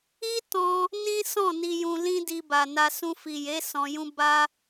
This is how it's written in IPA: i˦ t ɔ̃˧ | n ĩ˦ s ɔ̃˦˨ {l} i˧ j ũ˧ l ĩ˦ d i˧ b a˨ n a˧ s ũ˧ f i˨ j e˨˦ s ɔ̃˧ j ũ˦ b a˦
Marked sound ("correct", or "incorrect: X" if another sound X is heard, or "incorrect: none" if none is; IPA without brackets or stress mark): incorrect: n